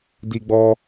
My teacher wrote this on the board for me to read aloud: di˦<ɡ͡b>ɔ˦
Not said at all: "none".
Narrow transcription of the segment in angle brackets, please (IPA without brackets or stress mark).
ɡ͡b